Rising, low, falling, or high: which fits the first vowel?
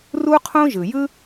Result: high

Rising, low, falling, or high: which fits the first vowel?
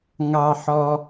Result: low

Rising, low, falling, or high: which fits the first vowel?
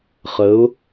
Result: rising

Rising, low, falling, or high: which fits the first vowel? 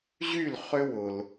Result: falling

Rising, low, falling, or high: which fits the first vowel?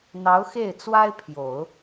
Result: rising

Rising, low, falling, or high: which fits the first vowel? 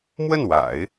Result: falling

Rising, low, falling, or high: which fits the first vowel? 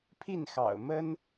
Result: falling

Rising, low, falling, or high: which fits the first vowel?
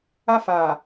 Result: high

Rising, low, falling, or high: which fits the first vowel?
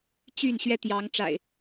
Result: falling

